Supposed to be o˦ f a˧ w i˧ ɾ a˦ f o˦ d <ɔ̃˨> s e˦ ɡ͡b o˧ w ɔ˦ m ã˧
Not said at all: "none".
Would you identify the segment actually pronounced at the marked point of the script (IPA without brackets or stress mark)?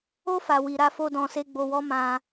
ɔ̃˧